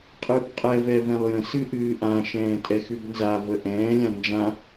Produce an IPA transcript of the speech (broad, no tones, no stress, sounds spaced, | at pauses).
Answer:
qʼ ɨː p qʼ ɛ v ɛ v ɛ̃ lˠ j ə̃ s ɨ ʔ ɨː ʔ ã ʃ ɛ̃ː tʼ ɛ x ʉ b n z a v ə ʔ ɛ̃ː lʲ ã n d͡ʒ ã